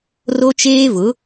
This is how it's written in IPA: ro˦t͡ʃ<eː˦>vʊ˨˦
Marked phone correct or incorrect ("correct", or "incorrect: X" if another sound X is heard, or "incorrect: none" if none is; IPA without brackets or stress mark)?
correct